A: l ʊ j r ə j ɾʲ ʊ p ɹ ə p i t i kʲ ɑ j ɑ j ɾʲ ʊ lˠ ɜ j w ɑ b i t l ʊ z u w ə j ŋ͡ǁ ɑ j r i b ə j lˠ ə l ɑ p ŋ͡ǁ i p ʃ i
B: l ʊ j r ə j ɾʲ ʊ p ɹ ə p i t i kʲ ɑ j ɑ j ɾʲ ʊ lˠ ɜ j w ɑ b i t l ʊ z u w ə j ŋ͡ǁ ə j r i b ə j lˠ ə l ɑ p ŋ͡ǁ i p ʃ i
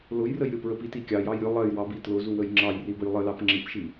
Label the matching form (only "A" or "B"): A